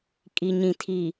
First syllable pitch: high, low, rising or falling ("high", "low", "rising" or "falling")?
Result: low